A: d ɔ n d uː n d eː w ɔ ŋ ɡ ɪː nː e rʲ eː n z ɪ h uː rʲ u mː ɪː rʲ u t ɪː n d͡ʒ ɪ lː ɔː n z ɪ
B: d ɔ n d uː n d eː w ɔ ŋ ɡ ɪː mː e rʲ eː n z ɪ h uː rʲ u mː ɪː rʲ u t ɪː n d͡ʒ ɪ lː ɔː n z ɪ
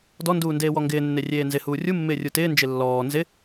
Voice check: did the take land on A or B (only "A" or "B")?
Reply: A